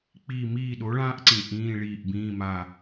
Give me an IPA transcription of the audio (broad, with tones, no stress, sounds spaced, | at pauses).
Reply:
k͡p i˦˨ m iː˦˨ ɗ o˨˥ ɭ ãː˥ ʔ ǀ ĩ˨˩ ʔ ĩː˧˥˧ ɭ iː˦˨ ʔ b ĩː˧˥˧ m a˦˨